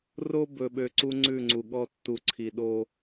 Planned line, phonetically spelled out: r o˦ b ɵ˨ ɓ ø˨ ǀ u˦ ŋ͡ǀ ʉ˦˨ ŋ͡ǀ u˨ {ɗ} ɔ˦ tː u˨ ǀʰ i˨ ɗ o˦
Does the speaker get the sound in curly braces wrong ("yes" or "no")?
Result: yes